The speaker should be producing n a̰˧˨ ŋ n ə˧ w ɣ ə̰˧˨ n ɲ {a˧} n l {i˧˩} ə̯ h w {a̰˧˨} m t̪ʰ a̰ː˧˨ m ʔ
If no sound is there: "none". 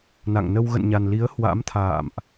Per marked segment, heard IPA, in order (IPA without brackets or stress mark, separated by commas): a˨˩, i˨˦, a̰˧˥